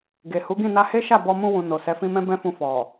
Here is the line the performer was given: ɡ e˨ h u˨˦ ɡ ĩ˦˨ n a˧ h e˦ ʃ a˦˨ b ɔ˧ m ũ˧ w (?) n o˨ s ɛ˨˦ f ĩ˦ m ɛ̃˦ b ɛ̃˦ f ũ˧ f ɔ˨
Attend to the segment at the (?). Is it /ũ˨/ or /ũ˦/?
ũ˨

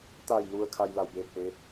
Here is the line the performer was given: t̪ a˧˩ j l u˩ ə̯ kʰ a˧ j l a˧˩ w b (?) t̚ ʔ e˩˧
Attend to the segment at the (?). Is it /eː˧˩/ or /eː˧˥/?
eː˧˩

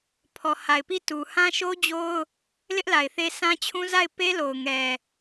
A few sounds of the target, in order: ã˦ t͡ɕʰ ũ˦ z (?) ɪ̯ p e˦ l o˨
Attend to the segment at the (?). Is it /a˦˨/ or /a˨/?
a˦˨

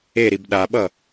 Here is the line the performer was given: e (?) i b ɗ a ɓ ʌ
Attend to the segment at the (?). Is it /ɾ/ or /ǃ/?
ɾ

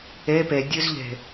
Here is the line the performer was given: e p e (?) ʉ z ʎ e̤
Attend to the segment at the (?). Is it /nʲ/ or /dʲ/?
dʲ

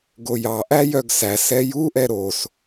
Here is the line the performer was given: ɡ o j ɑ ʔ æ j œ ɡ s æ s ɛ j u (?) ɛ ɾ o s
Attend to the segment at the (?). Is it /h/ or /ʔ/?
ʔ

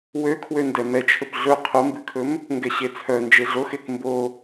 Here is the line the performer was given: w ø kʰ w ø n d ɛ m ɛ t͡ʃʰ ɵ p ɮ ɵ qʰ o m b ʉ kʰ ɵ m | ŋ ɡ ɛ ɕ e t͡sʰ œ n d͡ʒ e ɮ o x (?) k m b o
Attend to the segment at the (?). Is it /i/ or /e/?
e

